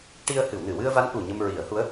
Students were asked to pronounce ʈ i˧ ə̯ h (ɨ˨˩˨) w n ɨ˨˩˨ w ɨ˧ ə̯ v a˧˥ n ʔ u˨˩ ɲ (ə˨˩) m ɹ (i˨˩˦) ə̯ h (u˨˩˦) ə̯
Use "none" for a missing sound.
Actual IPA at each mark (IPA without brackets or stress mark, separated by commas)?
ɨ˨˩˨, ə˧, i˨˩˦, u˧˥